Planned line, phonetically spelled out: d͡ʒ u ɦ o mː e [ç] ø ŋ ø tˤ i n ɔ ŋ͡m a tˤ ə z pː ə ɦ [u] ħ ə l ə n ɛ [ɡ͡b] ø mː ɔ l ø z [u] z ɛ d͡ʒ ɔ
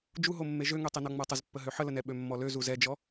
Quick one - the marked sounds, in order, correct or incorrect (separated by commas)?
incorrect, incorrect, incorrect, correct